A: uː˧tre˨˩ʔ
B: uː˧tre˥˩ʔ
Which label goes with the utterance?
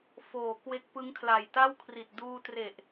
A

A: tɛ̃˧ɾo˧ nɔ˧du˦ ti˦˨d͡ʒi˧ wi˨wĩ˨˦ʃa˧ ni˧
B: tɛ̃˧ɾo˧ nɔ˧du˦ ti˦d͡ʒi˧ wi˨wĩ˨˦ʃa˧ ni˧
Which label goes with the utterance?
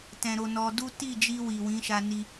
A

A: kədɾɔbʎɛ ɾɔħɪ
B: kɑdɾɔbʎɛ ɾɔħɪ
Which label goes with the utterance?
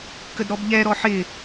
A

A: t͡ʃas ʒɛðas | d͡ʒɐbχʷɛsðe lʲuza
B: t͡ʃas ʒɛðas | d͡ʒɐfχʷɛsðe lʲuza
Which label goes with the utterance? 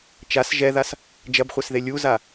A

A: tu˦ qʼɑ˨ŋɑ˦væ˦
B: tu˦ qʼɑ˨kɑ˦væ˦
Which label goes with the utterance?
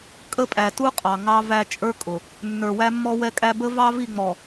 A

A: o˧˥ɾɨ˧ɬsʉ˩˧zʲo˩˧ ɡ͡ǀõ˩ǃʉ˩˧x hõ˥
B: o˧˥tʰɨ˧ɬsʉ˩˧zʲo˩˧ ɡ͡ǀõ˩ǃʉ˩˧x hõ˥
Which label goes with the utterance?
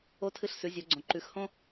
B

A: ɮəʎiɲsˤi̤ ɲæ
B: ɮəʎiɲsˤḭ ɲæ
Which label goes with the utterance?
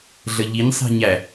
A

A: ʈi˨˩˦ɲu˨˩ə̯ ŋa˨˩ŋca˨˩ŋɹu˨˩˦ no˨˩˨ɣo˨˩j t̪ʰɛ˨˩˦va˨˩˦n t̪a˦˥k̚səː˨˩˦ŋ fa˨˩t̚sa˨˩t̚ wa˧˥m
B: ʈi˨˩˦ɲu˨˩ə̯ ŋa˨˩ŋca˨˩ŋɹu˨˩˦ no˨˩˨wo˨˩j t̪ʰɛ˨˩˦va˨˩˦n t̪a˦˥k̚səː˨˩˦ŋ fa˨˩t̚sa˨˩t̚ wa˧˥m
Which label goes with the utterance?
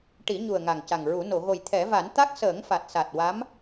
A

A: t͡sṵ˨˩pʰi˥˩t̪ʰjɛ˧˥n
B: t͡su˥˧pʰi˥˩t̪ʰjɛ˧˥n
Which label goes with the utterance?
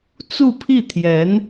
B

